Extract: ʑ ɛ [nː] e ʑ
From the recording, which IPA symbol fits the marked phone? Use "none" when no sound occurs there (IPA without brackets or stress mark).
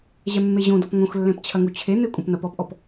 mː